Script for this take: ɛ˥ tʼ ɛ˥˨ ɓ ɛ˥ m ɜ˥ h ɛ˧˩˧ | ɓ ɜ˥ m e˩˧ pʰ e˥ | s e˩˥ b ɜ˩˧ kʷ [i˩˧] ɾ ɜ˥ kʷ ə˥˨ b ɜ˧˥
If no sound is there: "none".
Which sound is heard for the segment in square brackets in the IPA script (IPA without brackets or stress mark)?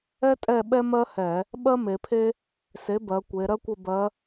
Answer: e˩˧